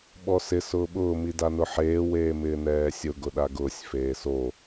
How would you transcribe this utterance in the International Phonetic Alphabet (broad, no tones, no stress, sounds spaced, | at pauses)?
ɓ ɔ s ɪ s ʊː ɓ ʊː m i d a n ʊ ħ eː w eː m ɪː n ɛː sʲ ʊ ɡ ʊ ɗ a ɡ ʊː sʲ f eː s o